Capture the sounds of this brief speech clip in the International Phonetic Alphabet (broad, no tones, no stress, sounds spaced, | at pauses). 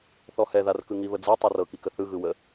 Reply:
θ ɔ h ɛ ð a r k ɯ ŋ i β ə d͡z ɤ tˤ ɤ r ɤ k i k ə θ ɯ ɣ ɯ w ə